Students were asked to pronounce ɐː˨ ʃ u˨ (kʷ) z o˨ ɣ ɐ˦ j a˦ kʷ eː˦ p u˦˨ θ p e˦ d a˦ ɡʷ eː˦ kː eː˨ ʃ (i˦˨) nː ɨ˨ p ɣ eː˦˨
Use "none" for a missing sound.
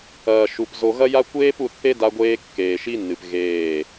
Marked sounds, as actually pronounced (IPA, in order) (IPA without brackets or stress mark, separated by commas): p, i˦